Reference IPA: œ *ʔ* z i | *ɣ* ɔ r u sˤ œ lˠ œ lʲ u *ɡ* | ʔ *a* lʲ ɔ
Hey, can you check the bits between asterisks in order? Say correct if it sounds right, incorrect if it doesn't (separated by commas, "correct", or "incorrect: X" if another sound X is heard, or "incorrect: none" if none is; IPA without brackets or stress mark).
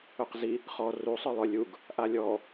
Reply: incorrect: q, incorrect: χ, correct, correct